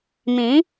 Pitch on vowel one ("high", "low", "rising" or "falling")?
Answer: rising